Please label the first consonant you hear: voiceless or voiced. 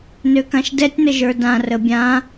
voiced